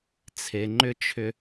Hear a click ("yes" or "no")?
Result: yes